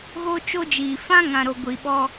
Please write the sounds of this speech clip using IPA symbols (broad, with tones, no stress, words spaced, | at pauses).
ɣo˦ t͡ʃo˦d͡ʒiː˨ fã˦ ŋã˨ɾo˨ ɡʷi˨ɓɔ˦